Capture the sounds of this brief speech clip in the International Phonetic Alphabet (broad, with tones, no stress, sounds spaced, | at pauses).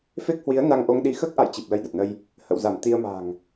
f e˦˥ k̚ h w i˨˦ ə̯ n a˧ ŋ ʔ o˧ ŋ ɗ i˧ x əː˦˥ k̚ ʔ a̰˧˨ j t͡ɕ i˨˩ p̚ l ə˧ j ɗ ə˨˩ t̚ n ə˧ j | h ə̰˧˨ w z a˧˩ m t̪ i˧ ə̯ m a̤˨˩ ŋ